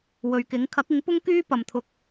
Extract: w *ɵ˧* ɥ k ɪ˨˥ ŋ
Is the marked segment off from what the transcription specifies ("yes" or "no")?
yes